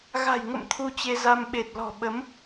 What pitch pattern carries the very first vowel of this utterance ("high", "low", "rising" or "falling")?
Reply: low